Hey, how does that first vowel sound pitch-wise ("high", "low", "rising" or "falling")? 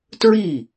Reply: falling